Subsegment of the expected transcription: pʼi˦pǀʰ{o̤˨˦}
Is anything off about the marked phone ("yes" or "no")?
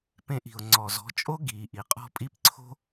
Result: yes